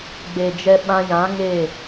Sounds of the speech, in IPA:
ɡ͡b e˨ d͡ʒ ɛ˧ ɓ ã˧ j ã˨˦ ŋ e˦˨

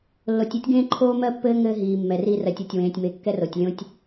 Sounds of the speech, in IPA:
lː o˨ tʲ ɛ˦ tʲ ɡ ẽː˦ ǃʰ oː˦ m ɜ˦ pː ɘː˦ ŋ ɘː˦ ɦ iː˨ mː ɛ˨ r i˦ r ɜ˨ tʲ o˨ tʲ w ẽː˨ tʲ m e˨ kː ɛ˦ r o˨ tʲ lʲ õ˦ tʲ

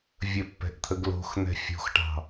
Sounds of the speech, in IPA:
vʲ ə pː ɛ̤ ʔ t̪ʰ ə ɡ l o̤ x n̪ ɛ̤ fʲ o̤ x ʈ ɑ̤

